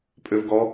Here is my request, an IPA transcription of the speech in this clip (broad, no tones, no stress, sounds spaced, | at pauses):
pʼ ø v ɡ ɔ